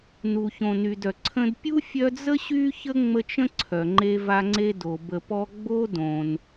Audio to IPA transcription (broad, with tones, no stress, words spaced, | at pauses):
nu˨çõ˨ny˨dœ˩ ǀʰə̃˦d pʲu˥fʲœ˦d͡zə˥ ɕy˥çə˥ ŋ͡mə˦t͡ʃə̃˥ ǀʰœ˩ŋ͡ǃe˦va˦ ŋ͡ǀe˥ do˩ bə˨pɔ˦ ɡ͡bo˥dõ˩n